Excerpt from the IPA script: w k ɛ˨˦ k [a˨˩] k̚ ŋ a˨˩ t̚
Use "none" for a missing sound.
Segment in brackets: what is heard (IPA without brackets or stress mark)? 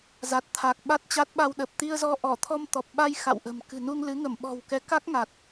a˦˥